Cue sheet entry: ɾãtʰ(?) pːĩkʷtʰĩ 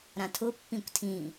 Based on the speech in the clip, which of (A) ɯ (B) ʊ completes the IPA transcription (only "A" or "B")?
B